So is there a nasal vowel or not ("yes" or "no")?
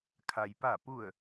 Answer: no